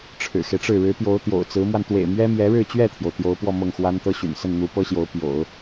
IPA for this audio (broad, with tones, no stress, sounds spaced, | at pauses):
ʈ͡ʂʰ ɻ̩˨˩ x e˦ ɪ̯ ʈ͡ʂ ɻ̩˥˩ ɻ ɻ̩˧˥ p j o˧˥ ʊ̯ t̪ j o̰˨˩ ʊ̯ t͡s ɹ̩˧˥ m w a˧ n t̪ w ḛ˨˩ ɪ̯ m ɥ ɛ˥ m j ɛ˧˥ ɻ ɻ̩˥˧ t͡ɕ ɥ ɛ˥˩ t̪ʰ j o˩ ʊ̯ t̪ j o˧˥ ʊ̯ p w ɔ˥˧ m ɤ˥˩ ŋ x w a˥ n t̪ ɤ˥ ɕ y̰˨˩ n s ə˥˩ n n̪ u˧˥ p ɤ˥ ɕ j o˧˥ ʊ̯ p j o̰˨˩˦ ʊ̯